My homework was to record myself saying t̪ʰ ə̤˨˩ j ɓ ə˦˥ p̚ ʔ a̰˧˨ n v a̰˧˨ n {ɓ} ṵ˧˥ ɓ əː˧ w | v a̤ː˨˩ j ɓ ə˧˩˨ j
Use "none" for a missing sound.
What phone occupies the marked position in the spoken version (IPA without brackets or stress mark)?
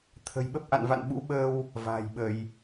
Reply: ɓ